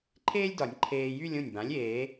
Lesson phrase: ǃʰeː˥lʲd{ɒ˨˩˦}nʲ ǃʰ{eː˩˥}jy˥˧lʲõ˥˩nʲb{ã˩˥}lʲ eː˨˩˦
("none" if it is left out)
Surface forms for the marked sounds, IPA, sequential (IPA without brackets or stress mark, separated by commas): ɒ˨˩˦, eː˧, ã˩˥